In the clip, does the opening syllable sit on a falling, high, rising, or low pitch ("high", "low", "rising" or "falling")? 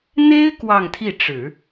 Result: high